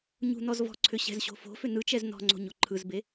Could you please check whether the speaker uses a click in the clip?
yes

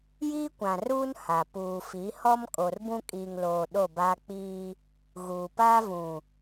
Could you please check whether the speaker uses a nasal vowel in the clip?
yes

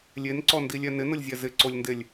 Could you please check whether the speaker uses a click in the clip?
yes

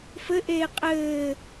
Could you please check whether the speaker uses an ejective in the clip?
yes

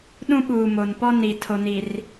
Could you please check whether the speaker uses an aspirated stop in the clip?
yes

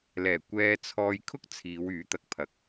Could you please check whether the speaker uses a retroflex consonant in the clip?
no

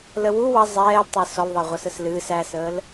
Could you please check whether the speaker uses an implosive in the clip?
no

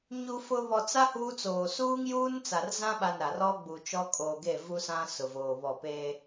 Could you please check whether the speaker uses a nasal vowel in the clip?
yes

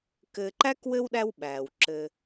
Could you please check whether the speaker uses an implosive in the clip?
yes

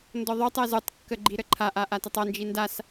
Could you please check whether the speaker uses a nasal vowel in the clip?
no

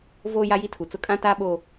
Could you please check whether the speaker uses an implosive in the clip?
yes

